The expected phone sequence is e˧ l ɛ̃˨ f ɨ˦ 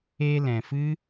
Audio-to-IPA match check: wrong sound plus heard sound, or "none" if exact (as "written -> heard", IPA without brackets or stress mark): none